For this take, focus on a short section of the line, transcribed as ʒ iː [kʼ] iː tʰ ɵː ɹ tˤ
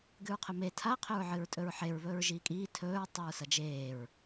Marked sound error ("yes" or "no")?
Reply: no